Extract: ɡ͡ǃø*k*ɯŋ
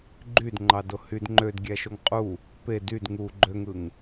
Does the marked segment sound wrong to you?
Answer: yes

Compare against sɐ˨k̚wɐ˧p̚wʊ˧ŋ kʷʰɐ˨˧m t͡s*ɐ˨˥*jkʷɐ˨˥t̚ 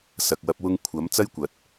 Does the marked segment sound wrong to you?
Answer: yes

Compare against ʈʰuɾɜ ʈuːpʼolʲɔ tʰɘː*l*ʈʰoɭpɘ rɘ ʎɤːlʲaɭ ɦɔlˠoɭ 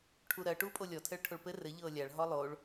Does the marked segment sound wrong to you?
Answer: yes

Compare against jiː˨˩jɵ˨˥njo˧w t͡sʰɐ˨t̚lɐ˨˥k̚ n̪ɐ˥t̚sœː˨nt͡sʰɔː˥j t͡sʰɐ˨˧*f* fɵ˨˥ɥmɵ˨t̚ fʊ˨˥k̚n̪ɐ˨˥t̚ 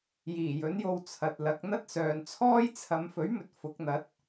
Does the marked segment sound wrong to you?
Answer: yes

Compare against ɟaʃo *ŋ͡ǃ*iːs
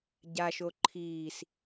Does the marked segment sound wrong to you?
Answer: yes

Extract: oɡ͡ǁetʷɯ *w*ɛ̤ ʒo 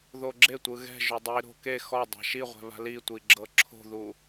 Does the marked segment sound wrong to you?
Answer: yes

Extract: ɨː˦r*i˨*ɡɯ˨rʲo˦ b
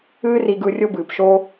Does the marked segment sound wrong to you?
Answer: no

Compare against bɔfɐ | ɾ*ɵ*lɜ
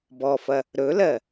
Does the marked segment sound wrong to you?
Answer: no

